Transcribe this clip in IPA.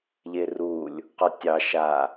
ʎ e r u lʲ | q ɒ tʲ ɑ ʃ a

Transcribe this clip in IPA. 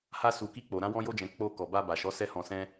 h a˧ s u˨ k i˧ k͡p o˨ ɾ ã˧ w ɔ̃˧ j o˧ d͡ʒ ɛ̃˨ k͡p o˧ k ɔ˨ b a˧ b a˨ ʃ ɔ˨˦ s ɛ˦ h ɔ̃˧ s ɛ̃˦

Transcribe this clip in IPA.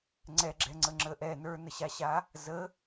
ŋ͡ǀ ɛ ɡ͡ǁ ɛ ŋ͡ǀ ə ŋ͡ǁ ə ʔ ɛ n ə˞ n ə ɕ a ɕ a | z ə

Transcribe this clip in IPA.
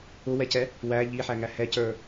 ʊ w ɛ c ɛ | w æ ʎ i ħ æ ŋ æ h ɛ c ə˞

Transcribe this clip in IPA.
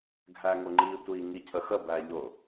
ɡʱ æ ŋ ʊ ŋ͡ǃ i tʷ i ŋ i cʰ ə x ə b æ ʎ ʊ

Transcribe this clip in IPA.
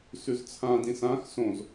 s ʉ z t͡sʰ ã d ĩ s ã x s õ z

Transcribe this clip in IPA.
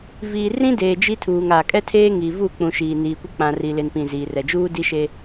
v iː˨ r ĩ˦ d eː˨ d͡ʒ i˦ tʰ uː˨ ŋ a˨ kʼ ɛ˦ tʰ eː˦ ŋ i˨ v u˦˨ k͡p ũ˨ ʃ iː˨ n iː˨ kʷ ɪ˦ k͡p ã˨ r i˨ l ɪ˨ n p ĩ˨ z iː˨ r ɛ˨ d͡ʒ uː˦ d i˦ ʃ e˦

